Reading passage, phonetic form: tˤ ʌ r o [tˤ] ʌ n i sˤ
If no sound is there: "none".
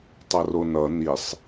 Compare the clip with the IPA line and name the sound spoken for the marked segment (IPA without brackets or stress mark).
n